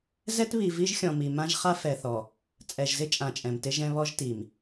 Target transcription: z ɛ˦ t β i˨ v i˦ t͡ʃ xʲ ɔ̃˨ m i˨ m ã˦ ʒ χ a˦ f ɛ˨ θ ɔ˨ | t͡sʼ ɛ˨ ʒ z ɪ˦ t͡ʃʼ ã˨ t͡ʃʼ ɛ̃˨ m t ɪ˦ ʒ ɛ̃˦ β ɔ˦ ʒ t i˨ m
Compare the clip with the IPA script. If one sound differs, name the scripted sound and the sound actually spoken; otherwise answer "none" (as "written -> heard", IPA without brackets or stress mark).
t͡ʃ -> ʒ